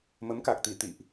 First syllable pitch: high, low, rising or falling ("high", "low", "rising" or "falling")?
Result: rising